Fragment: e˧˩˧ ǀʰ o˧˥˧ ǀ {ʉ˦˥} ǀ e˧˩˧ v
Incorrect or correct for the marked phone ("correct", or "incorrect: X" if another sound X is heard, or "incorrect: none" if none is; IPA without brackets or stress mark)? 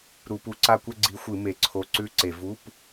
correct